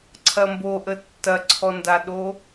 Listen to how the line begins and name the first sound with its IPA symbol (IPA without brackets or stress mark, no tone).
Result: ǀʰ